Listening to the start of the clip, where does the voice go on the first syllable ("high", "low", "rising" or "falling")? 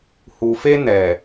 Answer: low